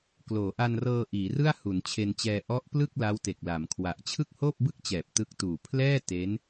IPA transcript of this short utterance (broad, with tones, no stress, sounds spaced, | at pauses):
k l oː˩˦ ʔ a˧ n r ɤː˧ ʔ iː˩˦ r ɯ˥˩ a̯ h u˩˦ n t͡ɕʰ e˧ n t͡ɕ ɛː˧ ʔ ɔ˦˥ ʔ p l ɯ˥˩ k̚ l a˦˥ w t e˨˩ k̚ l a˩˦ m kʰ w a˨˩ ʔ t͡ɕʰ ɯ˥˩ k̚ h oː˥˩ p̚ b ɯ˥˩ k̚ t͡ɕ ɛː˨˩ p̚ t ɯ˦˥ k̚ t uː˨˩ pʰ l ɛː˥˩ t e˦˥ n